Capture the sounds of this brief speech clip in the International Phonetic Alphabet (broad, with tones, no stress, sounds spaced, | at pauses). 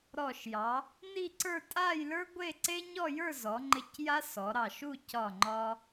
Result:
ɾ ɔ˧˩ ʃ j ɑ˩˧ | n i˥˧ ǀ ə˞˥˧ tʼ a˥˧ j l ə˞˥ ɡʷ e˥˧ ǀ e˥ ɲ ɔ˥˧ j ə˞˥˧ z ɔ˩˧ ŋ͡ǃ ɪ˧ c j a˥ s ɔ˩˧ ɾ ɑ˧˩ ʃ u˥˧ c ɒ˧˩ ŋ͡ǃ ɒ˧